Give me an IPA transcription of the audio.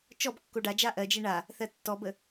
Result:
t͡ʃɔb kːoɖad͡ʒa ʔɜd͡ʒe ɳa | θɜtːɔbə

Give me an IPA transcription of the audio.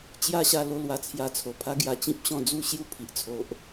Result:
t͡ɕja˥˧ɕa˥˧ lo˥˧lwa˧ t͡sʰja˧t͡sʰo˨˩pʰa˦ɡja˧ t͡ɕĩ˦p̚ɕɔ̃˥˧ d͡zu˥˧ɕju˥˧pʰi˨ʔ t͡sʰo˦ʔ

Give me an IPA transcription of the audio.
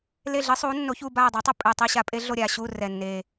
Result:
le˦˨ ɮɨ˨˥sˤuː˨˥ nːo˨˥çuː˦˨ baː˦˨dˤa˨˥tˤɛ˦˨ pʼɨː˨˩ tˤi˦˨ɕa˨˥ pʼe˨˥ɮo˦˨ɾʲaː˦˨ɕuː˦˨ rɛ˨˩nːeː˨˩

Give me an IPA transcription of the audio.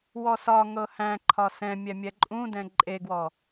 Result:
wɔsɒ ŋɤhæ̃ ǃʰɒsɛ̃mʲɛmʲɛ ǃʼũdɛ̃ ǃʼeɡwɔ

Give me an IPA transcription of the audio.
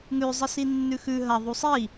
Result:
ŋʉ zˤɨsinːʉxʉ ɦɐ ðˤusˤi

